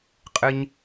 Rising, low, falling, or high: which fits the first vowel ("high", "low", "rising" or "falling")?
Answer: high